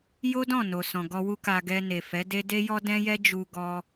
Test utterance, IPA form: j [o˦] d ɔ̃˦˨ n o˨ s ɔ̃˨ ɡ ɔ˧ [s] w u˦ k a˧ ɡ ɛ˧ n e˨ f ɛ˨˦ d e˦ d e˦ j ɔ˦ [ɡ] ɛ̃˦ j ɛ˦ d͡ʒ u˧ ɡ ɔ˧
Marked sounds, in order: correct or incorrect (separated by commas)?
correct, incorrect, incorrect